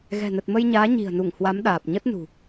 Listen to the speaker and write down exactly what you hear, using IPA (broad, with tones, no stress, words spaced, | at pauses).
ɣɛ̤˨˩nə˨˩t̚mə˧jɲaː˨˦ ɲi̤˨˩ə̯nu˧˩ŋ hwa˨˦mɗaː˨˩p̚ ɲə˦˥t̚nṳ˨˩